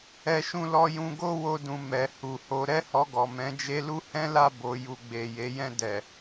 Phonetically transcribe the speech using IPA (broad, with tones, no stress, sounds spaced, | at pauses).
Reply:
ɛ˦ ʃ ũ˦ l ɔ˦ j ũ˧ ɡ o˦ w o˧ d ũ˨ m ɛ˨ h u˨ h o˨˦ ɾ ɛ˦ h ɔ˧ ɡ ɔ˨ m ɛ̃˨˦ d͡ʒ e˧ l u˦ h ɛ̃˦ l a˦˨ b o˨ j u˨ ɡ͡b e˨ j e˨˦ j ɛ̃˦˨ d ɛ˨